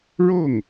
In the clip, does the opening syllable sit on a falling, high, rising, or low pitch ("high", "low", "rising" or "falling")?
falling